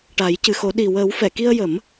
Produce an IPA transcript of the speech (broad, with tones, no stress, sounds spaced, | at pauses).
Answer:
ʈ a˨˩˦ j c ɨ˨˩ x o˨˩˦ ɗ i˨˩ w əː˨˩˦ w f ɛ˨˩˨ k i˧ ə̯ j ə˨˩˦ m